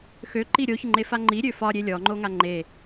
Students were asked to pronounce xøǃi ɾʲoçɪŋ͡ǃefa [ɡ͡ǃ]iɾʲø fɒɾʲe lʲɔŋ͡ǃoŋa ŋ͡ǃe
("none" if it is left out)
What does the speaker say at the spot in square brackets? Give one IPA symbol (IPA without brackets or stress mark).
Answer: ŋ͡ǃ